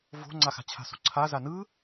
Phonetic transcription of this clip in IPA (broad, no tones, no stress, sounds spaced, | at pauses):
v o̤ ŋ͡ǀ a x a̤ t͡ɕʰ a̤ s o̤ ǀʰ a z a n ɯ